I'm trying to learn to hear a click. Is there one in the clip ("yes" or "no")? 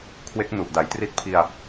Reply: no